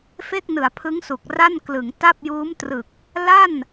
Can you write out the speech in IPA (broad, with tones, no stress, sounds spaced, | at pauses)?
f e˥˩ k̚ n ɯ˩˦ a̯ pʰ ɯ˦˥ ŋ s u˨˩ k̚ r a˥˩ n k l ɯ˩˦ ŋ t a˥˩ p̚ j uː˦˥ m t r ɯ˨˩ k̚ | l a˥˩ n